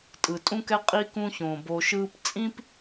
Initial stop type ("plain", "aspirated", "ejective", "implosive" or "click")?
ejective